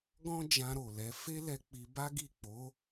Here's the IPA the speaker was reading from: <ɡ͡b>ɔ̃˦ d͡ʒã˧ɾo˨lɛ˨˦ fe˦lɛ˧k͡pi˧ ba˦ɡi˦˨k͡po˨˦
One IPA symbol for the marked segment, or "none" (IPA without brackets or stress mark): ɡ